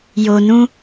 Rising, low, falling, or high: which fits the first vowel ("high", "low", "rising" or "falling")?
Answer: low